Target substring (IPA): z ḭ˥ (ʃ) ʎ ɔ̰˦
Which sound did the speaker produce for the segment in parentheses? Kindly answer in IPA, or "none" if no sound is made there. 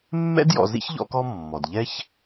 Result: ç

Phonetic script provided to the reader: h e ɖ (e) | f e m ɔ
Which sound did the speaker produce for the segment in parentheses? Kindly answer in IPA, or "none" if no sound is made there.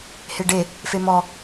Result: e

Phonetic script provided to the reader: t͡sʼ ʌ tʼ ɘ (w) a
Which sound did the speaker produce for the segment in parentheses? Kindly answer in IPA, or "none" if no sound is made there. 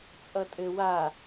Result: w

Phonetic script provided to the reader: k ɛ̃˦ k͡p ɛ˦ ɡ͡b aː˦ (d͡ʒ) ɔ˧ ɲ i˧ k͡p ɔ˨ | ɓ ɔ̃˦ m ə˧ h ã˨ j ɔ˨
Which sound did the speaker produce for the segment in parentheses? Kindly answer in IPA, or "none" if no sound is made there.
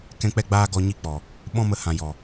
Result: ɡ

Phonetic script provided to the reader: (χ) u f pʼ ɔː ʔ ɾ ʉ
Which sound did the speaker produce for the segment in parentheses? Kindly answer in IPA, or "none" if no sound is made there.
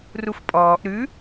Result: r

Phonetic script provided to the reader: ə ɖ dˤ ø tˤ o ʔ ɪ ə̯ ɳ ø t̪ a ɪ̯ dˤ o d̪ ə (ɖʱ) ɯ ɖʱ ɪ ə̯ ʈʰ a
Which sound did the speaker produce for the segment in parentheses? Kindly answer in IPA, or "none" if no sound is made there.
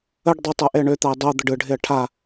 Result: ɖ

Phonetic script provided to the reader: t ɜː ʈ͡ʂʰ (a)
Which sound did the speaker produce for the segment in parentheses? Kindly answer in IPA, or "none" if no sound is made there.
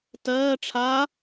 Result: a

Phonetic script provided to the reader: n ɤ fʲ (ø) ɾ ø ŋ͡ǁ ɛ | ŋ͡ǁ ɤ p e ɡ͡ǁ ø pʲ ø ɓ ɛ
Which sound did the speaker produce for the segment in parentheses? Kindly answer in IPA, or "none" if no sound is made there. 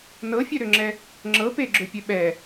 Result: ø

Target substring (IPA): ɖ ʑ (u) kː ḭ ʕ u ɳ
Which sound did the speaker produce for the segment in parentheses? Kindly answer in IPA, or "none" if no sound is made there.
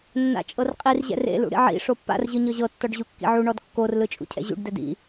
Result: u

